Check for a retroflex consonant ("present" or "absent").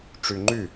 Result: present